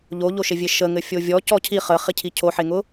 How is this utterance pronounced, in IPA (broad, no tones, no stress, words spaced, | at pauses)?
ʎoʎoʃevʲe ʃəŋɘ fʲovʲɔ cɔcʰi χəχicʰi cʰoħeŋʊ